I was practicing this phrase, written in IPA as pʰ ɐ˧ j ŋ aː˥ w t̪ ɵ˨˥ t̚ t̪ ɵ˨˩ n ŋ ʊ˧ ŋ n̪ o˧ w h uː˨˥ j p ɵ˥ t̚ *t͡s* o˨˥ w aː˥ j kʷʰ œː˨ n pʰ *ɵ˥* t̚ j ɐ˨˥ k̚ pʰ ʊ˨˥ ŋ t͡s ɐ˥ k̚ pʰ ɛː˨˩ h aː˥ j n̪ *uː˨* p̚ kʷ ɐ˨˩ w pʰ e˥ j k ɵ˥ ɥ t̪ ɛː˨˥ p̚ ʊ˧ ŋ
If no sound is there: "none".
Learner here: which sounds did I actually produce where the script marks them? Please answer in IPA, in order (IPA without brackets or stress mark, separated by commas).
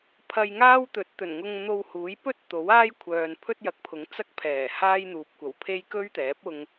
t̪, ɵ˥, uː˨